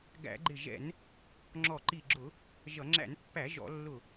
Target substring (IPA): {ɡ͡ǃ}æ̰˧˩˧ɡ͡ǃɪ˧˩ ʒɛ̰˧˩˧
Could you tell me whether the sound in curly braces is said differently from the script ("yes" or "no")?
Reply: yes